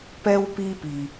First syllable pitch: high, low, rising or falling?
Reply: high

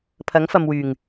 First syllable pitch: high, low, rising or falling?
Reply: rising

